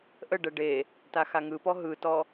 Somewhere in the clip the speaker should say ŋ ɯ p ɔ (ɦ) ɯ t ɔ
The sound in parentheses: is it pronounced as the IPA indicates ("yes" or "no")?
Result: yes